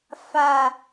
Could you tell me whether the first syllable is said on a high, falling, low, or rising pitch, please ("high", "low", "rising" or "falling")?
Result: low